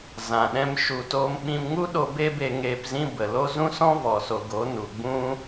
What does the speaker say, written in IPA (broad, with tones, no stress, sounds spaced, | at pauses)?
z ã˨ ɗ ɛ̃˦ m ʃ u˧ t oː˦ m ɓ ĩ˧ m ŋ u˦ ɗ o˧ b e˦ b e˧ ŋ eː˧ p z ĩ˦ b ə˨ l o˦ z ũ˦ s ɔ̃˦ v ɔ˨ s o˨ ɡ o˨˦ n u˨ ɡ͡b ũ˦